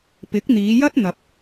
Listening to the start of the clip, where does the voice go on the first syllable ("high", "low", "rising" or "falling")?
rising